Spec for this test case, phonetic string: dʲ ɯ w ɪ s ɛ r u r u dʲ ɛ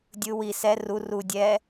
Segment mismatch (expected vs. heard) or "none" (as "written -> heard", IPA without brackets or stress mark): ɪ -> i